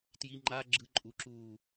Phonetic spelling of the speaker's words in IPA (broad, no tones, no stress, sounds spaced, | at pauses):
t j i ŋ͡ǃ a ɡ͡ǁ ɯ ǃʼ u ǁ uː